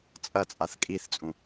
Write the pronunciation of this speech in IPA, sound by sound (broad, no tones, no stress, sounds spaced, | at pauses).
t͡sʼ ɐ t͡sʼ a θ kʼ i θ t͡sʼ ũ